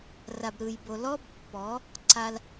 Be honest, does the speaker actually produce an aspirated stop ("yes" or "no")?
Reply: no